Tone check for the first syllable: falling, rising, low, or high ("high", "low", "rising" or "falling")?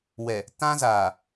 low